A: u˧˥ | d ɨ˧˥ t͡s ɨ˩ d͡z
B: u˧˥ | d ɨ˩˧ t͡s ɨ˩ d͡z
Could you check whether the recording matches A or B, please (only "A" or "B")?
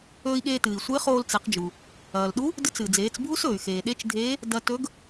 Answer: A